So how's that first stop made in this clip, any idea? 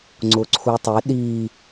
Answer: click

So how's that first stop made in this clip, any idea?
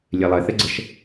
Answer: click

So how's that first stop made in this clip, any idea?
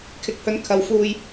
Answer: aspirated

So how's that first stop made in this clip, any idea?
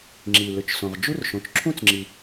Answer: click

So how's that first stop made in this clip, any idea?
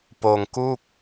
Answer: plain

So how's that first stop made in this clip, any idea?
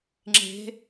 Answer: click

